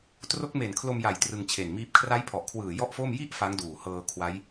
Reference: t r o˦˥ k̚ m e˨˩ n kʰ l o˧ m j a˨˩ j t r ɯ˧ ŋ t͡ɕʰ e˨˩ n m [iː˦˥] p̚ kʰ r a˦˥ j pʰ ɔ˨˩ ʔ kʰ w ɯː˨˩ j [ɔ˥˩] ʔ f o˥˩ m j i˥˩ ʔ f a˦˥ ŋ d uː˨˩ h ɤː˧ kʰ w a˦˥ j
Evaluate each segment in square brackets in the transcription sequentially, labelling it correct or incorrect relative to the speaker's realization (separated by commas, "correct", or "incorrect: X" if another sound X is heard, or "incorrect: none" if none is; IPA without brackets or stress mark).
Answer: correct, correct